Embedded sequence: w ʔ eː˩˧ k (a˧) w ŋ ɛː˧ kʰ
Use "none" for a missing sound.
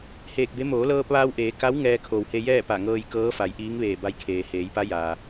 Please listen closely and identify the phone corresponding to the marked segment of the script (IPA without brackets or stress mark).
a˧˥